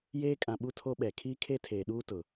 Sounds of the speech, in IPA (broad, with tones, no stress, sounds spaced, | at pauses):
j eː˦ kʼ ã˨ ɓ u˦ tʰ o˦ ɓ ɛ˨ kʰ iː˦ kʰ e˦ tʰ eː˨ ɗ uː˦ t ʊ˨